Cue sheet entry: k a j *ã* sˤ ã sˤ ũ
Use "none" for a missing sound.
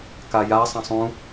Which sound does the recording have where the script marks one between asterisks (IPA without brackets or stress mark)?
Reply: a